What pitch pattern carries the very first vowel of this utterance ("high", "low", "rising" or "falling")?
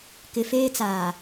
low